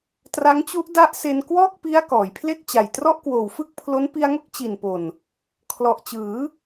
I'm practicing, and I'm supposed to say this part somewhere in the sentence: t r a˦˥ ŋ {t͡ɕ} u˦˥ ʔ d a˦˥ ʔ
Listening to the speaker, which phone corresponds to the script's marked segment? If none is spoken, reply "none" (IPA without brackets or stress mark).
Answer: t͡ɕ